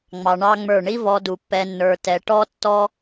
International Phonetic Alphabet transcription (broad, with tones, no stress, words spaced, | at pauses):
ŋ͡mɑ˧ɳɑ˦ŋ͡mə˞˦˨ ɳi˦vɔ˧du˨ pːɛ˧nːə˞˧ tɛ˧ ʈɔ˦ tːɔ˦